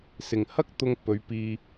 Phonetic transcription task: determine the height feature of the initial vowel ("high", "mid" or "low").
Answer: high